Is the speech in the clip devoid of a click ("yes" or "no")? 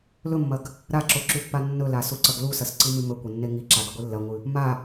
no